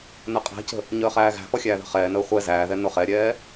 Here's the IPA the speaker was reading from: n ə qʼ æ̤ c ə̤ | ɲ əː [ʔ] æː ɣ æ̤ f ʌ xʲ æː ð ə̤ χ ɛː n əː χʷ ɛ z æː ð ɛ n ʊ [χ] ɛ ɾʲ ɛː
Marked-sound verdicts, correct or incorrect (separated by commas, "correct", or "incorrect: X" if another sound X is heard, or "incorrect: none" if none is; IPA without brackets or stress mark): incorrect: χ, correct